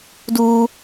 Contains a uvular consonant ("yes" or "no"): no